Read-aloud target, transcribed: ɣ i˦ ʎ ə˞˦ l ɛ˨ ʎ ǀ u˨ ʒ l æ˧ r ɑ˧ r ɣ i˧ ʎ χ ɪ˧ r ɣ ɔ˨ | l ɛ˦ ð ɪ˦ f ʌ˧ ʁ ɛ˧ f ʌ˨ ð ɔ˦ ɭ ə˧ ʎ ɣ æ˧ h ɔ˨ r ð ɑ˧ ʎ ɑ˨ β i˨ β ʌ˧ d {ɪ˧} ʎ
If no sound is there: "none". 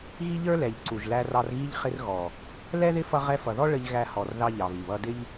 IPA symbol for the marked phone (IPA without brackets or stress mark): ɪ˦